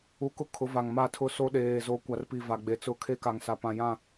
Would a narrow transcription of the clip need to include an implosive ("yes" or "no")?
yes